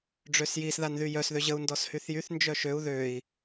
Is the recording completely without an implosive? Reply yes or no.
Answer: yes